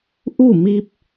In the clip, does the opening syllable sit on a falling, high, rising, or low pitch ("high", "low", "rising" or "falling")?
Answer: falling